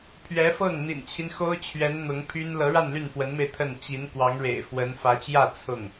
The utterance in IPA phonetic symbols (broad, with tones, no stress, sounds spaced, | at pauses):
pʰ ɥ ɛ˧˥ f ɤ˥˩ ŋ n̪ ḭ˨˩ n t͡ɕʰ i˦ n x o˥ ʊ̯ t͡ɕʰ ɥ ɛ˧˥ n n̪ ʊ˧˥ ŋ pʰ y˥ n l ɤ˧˥ ɻ a˥˧ n l y˥˩ n f w ə˧˥ n m e˧ ɪ̯ t̪ʰ ə˥˩ n t͡ɕ i˧˥ n k w ɑ˧˥ ŋ ɻ ḛ˨˩ ɪ̯ f w ə˧˥ n f ä˧˥ t͡ɕ j ä˥˧ t͡sʰ ʊ˥˩ ŋ